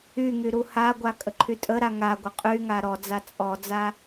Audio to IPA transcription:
yŋy ɾuhaɡʷa kʼəǃʰytʼəɾa ŋa ɡʷəqʼyŋa ɾɔd͡za t͡sʼɔd͡za

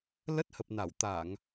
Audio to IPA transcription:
lə˦˥t̚hə˨˩p̚na˧˩w t̪a˧˩˨ŋ

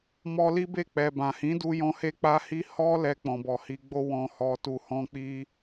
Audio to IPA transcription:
mɔ˧li˦be˦˨ k͡pɛ˨bã˨ hĩ˨˦du˧jɔ̃˧ he˦k͡pa˦hi˦ hɔ˦ lɛ˧k͡pɔ̃˨bɔ˨hi˧ ɡ͡bo˧ wɔ̃˧hɔ˧tu˧hɔ̃˦ k͡pi˦

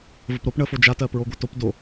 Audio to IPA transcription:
vəpɾop ɳəfo d͡ʒatɜpɹo ɡʷatop do

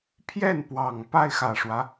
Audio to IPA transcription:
pʰjɛ˥˩npwɑ˨˩ŋ pa˥˩ɪ̯xä˨˩ʂwä˦

